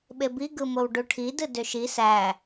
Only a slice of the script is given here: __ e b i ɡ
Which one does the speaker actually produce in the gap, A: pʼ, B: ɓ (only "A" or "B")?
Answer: B